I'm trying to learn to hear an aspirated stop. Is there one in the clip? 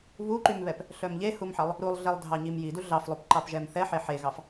no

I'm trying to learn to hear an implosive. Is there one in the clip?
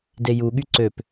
yes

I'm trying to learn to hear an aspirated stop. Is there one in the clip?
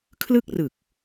yes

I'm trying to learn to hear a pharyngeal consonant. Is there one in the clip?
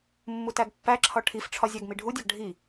no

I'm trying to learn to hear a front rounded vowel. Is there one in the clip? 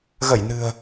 no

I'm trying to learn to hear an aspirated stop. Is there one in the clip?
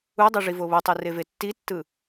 no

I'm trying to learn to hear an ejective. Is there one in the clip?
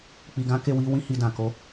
no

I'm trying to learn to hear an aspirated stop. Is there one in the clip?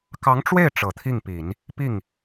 yes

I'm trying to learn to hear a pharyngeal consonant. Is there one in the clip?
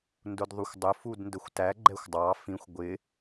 no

